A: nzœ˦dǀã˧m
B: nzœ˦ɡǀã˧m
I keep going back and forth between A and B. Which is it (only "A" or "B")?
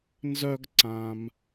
B